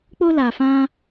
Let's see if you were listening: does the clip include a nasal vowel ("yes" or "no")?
yes